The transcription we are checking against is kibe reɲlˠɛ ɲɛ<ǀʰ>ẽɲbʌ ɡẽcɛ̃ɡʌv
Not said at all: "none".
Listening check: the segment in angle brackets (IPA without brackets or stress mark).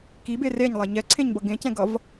ǀʰ